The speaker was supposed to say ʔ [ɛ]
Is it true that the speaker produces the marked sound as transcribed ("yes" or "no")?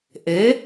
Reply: no